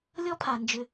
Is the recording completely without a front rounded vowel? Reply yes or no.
no